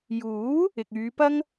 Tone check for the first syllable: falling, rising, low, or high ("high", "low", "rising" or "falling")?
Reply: rising